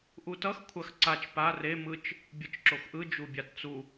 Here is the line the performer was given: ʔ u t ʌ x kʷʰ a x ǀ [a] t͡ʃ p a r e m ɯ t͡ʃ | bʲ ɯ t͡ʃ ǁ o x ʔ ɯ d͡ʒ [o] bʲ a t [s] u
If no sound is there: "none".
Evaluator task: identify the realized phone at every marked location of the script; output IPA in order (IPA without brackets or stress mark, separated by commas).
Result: a, u, t͡s